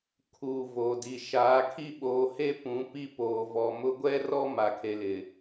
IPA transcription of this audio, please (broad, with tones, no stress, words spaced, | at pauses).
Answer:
kʰuː˨ voː˨di˨ ʃaː˨˦kʰi˦ ɓoː˨he˦ pũ˨˦ pi˦poː˨vɔ˨mʊ˦ ɡʷɛ˦rɔ˦ ma˨kʰe˨lɪ˨